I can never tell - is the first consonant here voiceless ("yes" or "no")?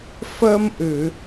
yes